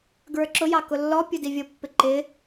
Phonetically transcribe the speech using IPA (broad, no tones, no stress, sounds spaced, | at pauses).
ɡ ɹ ə˞ ǁ ʊ j ɑ k ʊ lː ɔ pʲ u d i vʲ ʊ pː ɪ ǃ ɪ